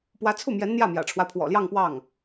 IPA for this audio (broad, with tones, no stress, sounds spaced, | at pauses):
p w ä˧˥ t͡sʰ u˥˩ m j ɛ˧˥ n n̪ j ä˥˩ m j ä̰˨˩ ʈ͡ʂʰ w a˦ ɪ̯ pʰ w ɔ̰˨˩ l j ɑ˥˧ ŋ p w ɑ˥˩ ŋ